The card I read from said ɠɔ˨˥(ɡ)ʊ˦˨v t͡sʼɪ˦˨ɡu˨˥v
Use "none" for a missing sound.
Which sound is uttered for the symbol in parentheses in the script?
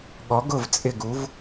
ɡ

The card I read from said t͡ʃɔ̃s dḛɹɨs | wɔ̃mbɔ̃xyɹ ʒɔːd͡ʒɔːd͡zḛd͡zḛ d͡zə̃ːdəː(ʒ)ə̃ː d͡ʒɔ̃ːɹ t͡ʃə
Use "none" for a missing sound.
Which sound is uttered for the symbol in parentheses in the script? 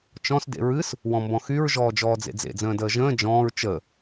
ʒ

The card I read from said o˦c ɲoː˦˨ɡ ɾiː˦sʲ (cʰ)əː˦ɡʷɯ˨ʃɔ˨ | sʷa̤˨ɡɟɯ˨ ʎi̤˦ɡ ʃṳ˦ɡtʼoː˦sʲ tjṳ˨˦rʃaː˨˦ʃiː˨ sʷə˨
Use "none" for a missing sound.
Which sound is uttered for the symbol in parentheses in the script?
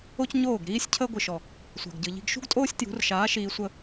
cʰ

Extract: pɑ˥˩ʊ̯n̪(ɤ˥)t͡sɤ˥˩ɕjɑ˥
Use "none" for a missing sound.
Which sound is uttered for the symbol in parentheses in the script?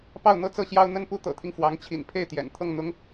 ɤ˥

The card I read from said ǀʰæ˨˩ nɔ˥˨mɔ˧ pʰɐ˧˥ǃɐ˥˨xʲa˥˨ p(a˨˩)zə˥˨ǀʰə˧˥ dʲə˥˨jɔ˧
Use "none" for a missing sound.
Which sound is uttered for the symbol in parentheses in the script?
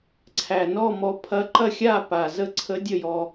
a˨˩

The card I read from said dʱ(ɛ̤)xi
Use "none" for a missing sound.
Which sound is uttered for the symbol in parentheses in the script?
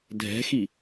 ɛ̤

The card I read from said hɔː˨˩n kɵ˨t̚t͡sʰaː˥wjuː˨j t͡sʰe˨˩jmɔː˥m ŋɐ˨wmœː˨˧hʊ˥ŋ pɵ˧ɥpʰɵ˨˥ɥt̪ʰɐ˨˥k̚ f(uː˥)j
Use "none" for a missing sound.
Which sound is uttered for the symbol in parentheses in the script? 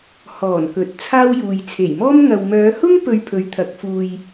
uː˧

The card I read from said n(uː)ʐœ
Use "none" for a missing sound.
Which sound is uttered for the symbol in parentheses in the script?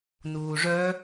uː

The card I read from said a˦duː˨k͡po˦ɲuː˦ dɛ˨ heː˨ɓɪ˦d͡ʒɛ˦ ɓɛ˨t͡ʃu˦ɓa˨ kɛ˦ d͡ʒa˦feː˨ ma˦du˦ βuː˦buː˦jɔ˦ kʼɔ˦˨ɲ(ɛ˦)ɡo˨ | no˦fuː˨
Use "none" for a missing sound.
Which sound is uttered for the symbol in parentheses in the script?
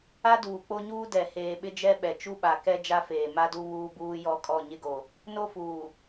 ɪ˦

